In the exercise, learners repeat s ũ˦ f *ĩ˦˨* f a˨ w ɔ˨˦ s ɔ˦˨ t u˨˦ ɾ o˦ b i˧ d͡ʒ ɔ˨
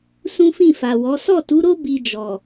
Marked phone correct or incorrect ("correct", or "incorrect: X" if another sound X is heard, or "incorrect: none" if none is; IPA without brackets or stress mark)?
correct